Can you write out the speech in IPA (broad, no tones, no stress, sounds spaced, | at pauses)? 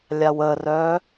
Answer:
lʲ a w ə r œ